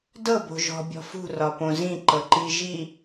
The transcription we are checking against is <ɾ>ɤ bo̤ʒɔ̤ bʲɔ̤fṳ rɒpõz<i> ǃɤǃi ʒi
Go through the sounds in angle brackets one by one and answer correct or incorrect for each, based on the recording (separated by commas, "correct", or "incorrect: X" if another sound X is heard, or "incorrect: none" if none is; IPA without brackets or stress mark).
incorrect: d, incorrect: ĩ